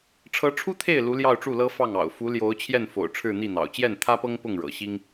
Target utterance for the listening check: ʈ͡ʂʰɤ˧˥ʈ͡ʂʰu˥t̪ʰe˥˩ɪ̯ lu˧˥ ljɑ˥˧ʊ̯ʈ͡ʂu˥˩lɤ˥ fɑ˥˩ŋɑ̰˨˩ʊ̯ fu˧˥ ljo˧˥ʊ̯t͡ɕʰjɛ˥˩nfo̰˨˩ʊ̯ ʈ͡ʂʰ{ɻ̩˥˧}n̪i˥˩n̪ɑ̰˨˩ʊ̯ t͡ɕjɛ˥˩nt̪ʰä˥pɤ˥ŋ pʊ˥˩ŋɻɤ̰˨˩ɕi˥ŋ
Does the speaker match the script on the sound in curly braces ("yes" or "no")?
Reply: yes